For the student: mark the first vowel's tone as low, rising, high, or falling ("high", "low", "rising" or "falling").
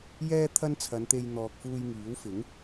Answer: high